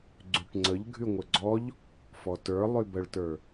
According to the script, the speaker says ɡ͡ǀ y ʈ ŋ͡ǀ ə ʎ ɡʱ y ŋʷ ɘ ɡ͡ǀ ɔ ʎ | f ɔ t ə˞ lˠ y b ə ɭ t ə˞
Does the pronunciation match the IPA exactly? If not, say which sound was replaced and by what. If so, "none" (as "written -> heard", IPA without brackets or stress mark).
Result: none